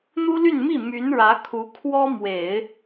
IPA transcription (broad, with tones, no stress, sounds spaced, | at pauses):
n̪ u˥ l y˥˧ n m i˥˩ m y˧˥ n ɻ ä˧˥ kʰ u˧˥ kʰ w ɔ˥ m w e˨˩˦ ɪ̯